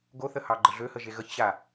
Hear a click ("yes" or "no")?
yes